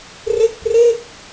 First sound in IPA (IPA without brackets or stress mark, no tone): r